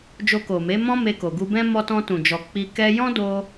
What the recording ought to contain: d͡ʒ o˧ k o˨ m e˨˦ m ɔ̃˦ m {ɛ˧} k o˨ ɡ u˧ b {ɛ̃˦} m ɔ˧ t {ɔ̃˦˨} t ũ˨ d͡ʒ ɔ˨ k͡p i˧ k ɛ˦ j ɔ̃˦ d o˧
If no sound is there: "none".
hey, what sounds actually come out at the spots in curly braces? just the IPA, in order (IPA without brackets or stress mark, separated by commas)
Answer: e˧, ɛ̃˦, ɔ̃˧